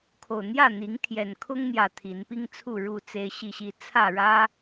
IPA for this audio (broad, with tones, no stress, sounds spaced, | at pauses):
kʰ o˨˩ ʊ̯ n̪ j ä˥˨ n̪ i˨˦ ŋ t̪ʰ j ɛ˨˩ n kʰ ʊ˦ ŋ n̪ j ä˨˩ t̪ʰ i˨˦ n p i˦ ŋ t͡sʰ u˥˨ ɻ u˥˨ t͡s e˦ ɪ̯ ɕ i˥˨ ɕ i˥˨ t͡sʰ ä˥˨ ɻ ä˦